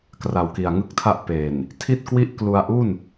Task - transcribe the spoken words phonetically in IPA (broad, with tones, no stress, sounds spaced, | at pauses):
k r a˨˩ w k i˨˩ a̯ ŋ ɯ˥˩ k̚ tʰ a˥˩ ʔ p e˨˩ n | tʰ i˥˩ t̚ k w i˥˩ ʔ k l u˧ a̯ ʔ u˥˩ n